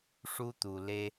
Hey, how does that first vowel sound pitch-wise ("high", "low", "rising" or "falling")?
high